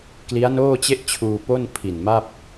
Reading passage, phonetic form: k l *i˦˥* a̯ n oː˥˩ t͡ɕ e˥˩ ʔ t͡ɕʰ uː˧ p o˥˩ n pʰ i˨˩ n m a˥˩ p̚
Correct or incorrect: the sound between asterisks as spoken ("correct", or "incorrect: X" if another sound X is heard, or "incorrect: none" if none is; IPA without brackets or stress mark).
correct